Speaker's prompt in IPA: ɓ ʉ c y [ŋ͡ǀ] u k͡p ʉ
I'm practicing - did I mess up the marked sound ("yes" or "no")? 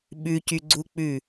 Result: yes